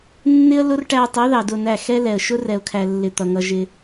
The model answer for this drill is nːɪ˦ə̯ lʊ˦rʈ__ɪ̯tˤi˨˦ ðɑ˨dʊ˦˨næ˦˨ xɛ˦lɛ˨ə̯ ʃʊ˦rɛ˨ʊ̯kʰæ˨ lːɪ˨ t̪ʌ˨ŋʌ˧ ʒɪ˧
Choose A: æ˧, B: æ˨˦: A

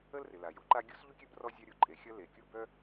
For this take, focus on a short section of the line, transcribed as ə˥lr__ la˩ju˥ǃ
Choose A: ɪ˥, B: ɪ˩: B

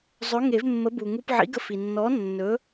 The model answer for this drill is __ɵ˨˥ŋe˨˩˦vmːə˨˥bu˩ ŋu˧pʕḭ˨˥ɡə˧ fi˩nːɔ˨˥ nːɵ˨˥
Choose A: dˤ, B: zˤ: B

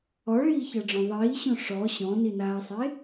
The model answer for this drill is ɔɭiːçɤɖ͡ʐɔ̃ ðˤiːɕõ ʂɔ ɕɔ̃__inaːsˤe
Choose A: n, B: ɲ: A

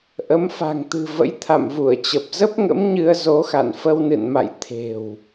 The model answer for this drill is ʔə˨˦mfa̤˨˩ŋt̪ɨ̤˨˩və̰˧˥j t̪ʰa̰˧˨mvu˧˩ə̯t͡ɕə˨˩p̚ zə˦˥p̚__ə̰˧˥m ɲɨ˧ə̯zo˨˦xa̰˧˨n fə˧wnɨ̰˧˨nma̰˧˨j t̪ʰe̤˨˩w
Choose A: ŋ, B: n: A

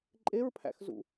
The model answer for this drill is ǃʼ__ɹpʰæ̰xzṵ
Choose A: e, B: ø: A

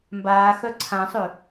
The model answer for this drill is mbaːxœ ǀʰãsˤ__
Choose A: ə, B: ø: B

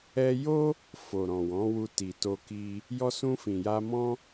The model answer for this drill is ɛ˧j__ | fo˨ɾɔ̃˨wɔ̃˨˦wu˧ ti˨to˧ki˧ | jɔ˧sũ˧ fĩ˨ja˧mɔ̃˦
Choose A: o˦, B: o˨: A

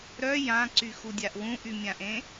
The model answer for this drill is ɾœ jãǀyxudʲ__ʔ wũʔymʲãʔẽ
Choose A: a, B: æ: A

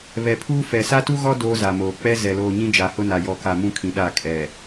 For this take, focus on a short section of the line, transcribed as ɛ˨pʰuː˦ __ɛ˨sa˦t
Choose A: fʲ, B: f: B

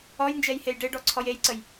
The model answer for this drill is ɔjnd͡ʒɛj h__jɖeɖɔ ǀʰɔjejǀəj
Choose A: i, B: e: B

